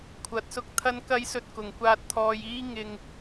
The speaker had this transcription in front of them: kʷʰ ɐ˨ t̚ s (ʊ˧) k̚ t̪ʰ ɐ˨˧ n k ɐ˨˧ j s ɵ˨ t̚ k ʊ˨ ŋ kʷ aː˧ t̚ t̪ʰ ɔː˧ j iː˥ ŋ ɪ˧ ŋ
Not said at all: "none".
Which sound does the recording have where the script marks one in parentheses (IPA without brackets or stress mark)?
ʊ˧